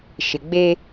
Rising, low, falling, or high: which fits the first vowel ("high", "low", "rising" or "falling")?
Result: low